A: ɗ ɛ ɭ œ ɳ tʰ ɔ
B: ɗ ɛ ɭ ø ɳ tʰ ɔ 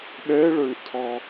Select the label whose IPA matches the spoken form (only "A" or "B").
B